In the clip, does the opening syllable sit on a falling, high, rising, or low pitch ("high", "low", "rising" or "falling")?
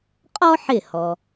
high